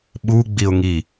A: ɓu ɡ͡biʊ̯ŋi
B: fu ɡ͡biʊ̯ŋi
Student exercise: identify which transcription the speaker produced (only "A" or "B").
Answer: A